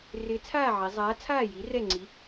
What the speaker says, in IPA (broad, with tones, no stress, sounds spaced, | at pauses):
r ɪː˨˥ t͡sʰ aː˥˨ ʕ i˩˧ zˤ aː˨˥ t͡sʰ aː˥˨ j i˨˥ r ɛ˥˨ ŋ͡ǀ i˨˥